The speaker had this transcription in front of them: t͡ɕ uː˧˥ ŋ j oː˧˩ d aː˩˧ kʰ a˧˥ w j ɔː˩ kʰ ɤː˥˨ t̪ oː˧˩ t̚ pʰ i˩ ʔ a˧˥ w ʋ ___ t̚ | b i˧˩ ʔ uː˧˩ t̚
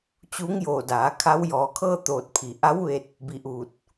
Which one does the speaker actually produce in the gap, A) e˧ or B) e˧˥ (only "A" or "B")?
A